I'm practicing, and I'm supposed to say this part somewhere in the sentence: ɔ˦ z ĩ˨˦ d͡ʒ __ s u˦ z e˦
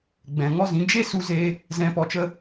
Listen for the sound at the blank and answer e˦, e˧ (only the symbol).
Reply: e˦